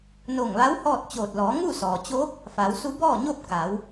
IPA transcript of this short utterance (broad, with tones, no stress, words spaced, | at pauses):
no˧˩ŋʋa˧˥w hɔː˥˨t̚t͡ɕoː˧˩t̚ lɔː˩˧ŋu˥˨sɔː˩t͡ɕoː˧˥k̚ | faː˩˧wsu˧˥ bɔː˥˨ɲo˥˨p̚ ka˩˧w